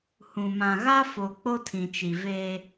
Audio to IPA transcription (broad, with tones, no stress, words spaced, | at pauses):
hũ˨mã˨ɣa˦ fo˨ k͡po˦tʰĩ˨t͡ʃi˨veː˦